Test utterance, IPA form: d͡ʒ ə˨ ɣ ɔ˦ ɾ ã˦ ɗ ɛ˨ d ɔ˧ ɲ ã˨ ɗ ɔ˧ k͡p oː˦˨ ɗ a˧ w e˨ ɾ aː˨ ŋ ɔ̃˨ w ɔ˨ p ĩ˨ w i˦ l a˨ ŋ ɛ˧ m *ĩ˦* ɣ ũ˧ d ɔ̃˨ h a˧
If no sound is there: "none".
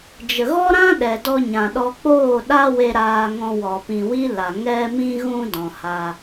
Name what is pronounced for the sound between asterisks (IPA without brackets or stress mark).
ĩ˧